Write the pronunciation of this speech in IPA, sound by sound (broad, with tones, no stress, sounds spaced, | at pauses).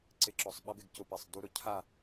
ǀ ɪ˧ ǁ ɔ˧˩ sˤ ɓ a˧˥ b ɪ˩˧ ɡ c ʊ˧ p ɛ˧˩ sˤ d u˧˥ ɾ ʊ˩˧ cʰ a˥˨